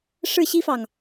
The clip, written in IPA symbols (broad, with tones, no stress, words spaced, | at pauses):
ʂɻ̩˥˩ɕi˥fɑ˨ŋ